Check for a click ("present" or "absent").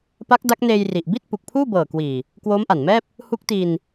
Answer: absent